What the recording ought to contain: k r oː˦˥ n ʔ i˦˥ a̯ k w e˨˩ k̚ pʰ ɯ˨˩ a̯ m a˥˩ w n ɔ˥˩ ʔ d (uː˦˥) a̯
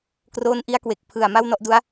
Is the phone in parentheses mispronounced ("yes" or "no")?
yes